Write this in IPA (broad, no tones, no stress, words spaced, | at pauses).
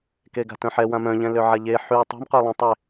keɡa̤tœ̃ħɛ wãmœ̃ʎɛ̃ løʕaʎe ħy tˤɛ̤mqœ lˠãtˤe